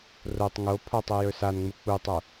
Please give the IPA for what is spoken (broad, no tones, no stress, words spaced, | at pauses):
rotˤ ŋo pʰɔtˤɵ jɵsanŋ͡mu k͡putˤo